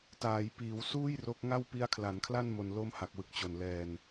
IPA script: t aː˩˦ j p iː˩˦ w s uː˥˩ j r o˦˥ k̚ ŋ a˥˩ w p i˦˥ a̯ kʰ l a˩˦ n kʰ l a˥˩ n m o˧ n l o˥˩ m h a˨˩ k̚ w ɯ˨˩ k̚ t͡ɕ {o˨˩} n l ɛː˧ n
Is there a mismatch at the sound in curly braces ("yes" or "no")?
no